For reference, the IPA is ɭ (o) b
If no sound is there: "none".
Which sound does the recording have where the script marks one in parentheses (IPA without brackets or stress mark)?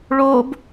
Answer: o